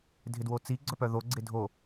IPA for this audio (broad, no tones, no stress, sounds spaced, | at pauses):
dʱ ɪ d w o t͡s i ɡ͡ǀ œ p œ ð o ɡ͡ǀ ɪ dʱ o